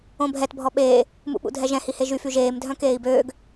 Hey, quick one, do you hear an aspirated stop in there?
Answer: no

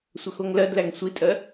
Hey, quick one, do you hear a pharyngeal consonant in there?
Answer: no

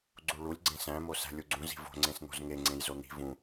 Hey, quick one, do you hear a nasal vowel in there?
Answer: yes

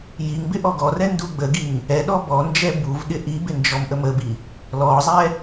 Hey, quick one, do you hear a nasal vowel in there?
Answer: no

